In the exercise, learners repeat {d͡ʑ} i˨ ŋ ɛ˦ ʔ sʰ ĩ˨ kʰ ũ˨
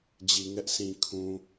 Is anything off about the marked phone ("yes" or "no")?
no